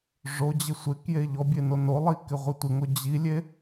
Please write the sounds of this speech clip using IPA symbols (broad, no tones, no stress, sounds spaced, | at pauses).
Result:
ʐ o d͡ʑ ɪ sʷ ɪ k j e ʎ ɔ bʲ e n o n o lˠ i k ɪ ʁʷ i tʷ ɪ ŋ o d͡ʑ i lʲ e